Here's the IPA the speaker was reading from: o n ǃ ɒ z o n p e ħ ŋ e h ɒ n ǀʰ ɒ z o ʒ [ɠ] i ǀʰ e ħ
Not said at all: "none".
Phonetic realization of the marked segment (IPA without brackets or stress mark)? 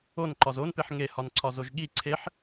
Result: ɠ